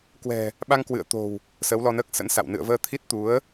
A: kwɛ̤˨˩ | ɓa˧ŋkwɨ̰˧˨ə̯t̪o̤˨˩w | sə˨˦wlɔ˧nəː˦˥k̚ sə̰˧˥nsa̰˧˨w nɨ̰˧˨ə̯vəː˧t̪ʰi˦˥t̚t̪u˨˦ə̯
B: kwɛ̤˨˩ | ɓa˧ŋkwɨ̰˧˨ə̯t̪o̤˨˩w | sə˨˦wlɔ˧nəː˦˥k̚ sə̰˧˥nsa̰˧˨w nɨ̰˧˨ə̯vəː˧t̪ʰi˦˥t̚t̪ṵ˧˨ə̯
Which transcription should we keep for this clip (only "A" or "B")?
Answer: A